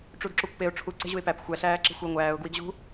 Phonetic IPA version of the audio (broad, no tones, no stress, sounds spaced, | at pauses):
ʈ͡ʂ u d ǁ o kʷ p e ʊ̯ ʈ͡ʂʰ u ǀ e̤ ʑ u ɪ̯ p æ p xʷ æ ɬ æː ǁ e̤ xʷ i ŋʷ æː ʊ̯ ɡ w i ɡ ʑ ṳ